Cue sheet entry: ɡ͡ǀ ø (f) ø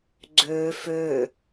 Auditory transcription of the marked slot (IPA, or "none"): f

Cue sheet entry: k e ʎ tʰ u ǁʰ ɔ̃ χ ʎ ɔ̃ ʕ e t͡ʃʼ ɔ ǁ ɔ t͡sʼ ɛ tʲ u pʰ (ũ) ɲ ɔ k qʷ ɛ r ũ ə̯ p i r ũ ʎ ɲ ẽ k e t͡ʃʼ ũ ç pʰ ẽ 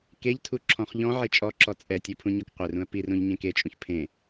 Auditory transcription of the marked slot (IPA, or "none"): ũ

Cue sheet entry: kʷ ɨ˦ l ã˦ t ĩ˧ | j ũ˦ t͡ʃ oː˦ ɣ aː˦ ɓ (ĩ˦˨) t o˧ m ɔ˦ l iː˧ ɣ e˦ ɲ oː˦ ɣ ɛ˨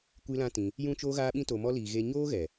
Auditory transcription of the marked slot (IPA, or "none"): ĩ˦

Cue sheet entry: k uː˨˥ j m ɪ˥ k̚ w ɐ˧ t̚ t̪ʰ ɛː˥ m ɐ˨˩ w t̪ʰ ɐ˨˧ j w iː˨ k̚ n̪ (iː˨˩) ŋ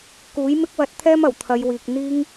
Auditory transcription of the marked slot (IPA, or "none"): iː˥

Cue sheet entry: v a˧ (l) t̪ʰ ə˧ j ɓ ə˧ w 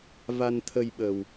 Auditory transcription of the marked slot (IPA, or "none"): n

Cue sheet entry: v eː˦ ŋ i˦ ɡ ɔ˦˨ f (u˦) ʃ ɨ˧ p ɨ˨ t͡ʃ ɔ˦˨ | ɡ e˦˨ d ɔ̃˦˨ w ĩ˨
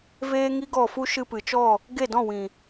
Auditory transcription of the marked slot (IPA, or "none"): u˦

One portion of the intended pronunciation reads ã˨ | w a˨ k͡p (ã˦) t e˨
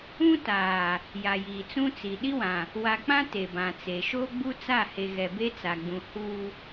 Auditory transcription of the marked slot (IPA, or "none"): ã˦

